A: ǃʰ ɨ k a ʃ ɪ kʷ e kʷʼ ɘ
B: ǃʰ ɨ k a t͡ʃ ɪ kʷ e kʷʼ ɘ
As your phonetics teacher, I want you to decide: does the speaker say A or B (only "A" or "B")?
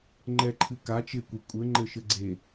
B